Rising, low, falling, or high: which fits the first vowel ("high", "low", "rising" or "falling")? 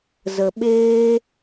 low